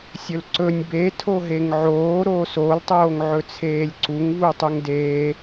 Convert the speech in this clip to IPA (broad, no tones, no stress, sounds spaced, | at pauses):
sʲ ɵ l ǀ ɵ nʲ b e tʰ o ɦ e ŋ ʕ oː ɾ oː s o l tˤ oː ŋ ʕ ɵ t͡sʰ eː lʲ ǀ u ŋ v u tˤ u ŋ d eː